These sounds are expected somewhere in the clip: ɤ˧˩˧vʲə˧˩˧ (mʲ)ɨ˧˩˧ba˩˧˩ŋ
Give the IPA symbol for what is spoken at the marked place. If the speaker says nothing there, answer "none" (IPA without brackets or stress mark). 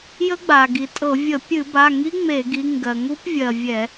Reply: pʲ